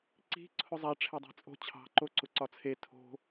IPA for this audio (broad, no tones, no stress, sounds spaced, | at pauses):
ǀ i̤ ǀʰ ʊ zˤ a ʈ͡ʂʰ e dˤ ɑ̤ t͡sʼ o̤ t͡ɕʰ ɑ̤ ǃ o ǀ ʊ ǀ ɒ t͡sʰ e tʰ o̤